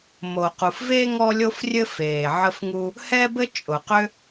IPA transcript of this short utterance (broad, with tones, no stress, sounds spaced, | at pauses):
m o˩ q u˩ f v e˥ ŋ ɔ˥ lʲ o˥ f rʲ ɘ˥ f eː˩ ʕ ə˥ f ŋ u˥ | h ɛ˥ b ɘ˥ t͡ʃʼ ʊ˩ q ʏ˥